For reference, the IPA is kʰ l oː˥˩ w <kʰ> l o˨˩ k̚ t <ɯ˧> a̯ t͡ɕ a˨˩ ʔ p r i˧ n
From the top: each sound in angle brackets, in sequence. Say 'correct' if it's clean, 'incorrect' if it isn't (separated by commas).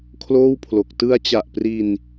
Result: incorrect, correct